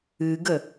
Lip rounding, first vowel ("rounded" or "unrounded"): unrounded